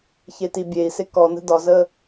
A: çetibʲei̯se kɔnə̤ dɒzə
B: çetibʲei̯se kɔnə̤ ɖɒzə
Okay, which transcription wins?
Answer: A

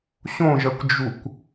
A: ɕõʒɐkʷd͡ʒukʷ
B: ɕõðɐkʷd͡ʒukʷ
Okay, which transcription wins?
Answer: A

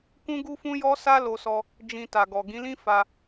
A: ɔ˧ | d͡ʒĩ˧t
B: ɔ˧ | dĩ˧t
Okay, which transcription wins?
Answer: A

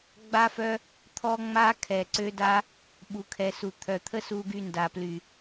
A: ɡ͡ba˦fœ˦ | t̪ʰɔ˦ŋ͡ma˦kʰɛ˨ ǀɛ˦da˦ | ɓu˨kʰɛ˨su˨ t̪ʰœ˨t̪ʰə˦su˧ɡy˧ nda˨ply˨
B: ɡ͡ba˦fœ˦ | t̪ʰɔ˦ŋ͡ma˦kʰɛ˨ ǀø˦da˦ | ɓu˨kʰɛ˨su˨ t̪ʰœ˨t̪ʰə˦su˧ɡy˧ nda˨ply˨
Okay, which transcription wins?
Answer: B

